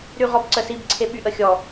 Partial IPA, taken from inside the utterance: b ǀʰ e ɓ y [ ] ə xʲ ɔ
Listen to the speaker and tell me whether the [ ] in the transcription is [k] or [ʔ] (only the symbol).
ʔ